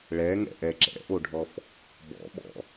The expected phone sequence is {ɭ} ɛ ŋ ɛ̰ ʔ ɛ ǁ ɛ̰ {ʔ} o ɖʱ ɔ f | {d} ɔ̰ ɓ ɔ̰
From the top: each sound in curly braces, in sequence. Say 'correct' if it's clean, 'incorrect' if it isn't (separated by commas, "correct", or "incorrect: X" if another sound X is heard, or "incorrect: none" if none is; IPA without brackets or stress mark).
correct, correct, incorrect: b